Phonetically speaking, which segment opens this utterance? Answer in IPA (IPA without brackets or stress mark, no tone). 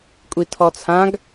kʷʼ